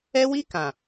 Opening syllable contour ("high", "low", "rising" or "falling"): high